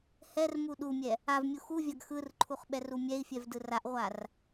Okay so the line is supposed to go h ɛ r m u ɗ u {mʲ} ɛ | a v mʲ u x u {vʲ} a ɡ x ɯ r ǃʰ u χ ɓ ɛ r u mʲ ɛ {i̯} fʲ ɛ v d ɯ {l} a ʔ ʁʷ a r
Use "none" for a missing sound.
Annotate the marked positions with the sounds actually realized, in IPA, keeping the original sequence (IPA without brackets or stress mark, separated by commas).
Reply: mʲ, vʲ, i̯, r